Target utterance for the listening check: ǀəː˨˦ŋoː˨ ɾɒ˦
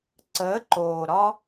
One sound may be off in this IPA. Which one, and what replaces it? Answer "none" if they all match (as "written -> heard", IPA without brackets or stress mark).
ŋ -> ǃ